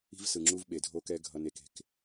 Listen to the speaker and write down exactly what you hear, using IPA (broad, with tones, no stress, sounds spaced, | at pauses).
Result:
i̤˦ v s ɯ˨ ŋ͡ǁ u˦ v ɓ e˨ dʱ o˦ k ɛ˦ ɡʱ ʌ˦ n e˦ k e̤˨ k